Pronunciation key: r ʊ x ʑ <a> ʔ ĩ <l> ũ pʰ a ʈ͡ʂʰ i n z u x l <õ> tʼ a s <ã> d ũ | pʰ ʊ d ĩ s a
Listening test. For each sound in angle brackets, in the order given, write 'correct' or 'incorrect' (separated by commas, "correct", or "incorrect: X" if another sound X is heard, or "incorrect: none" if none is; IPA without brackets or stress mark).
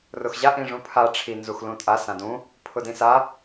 correct, incorrect: ʐ, incorrect: ũ, correct